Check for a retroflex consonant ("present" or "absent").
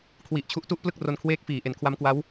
absent